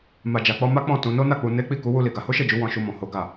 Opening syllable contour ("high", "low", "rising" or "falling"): low